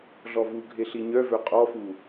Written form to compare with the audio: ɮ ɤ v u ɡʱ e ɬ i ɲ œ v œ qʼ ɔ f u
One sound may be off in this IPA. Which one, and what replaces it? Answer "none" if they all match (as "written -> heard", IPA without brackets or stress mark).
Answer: ɤ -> ɔ